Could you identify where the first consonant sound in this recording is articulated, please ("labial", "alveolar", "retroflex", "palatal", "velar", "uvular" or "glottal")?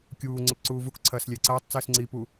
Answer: velar